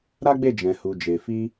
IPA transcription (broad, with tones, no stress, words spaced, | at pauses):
ɾa˦ɡ͡be˦˨ d͡ʒɛ̃˨hu˨ d͡ʒe˨fi˧